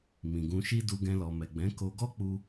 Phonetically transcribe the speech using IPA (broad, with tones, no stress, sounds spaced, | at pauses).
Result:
m ĩ˨ ɡ ũ˧ ʃ i˦ d u˧ ɡ ɛ̃˧ l ɔ˨ m ɛ˨ ɡ͡b ɛ̃˨˦ k o˧ ɡ ɔ˦ k͡p u˦